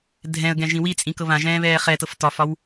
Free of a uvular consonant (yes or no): no